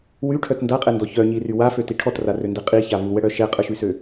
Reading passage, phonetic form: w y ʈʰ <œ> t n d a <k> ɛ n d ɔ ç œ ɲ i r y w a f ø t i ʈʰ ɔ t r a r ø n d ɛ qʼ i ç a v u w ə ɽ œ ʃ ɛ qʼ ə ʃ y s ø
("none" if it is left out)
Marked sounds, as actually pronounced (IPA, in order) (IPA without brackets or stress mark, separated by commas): œ, qʼ